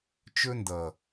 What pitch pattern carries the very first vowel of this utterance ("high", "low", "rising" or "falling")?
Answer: high